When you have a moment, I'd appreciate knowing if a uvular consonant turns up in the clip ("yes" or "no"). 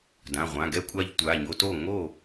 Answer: yes